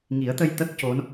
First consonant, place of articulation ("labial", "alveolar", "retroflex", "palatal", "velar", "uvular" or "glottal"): velar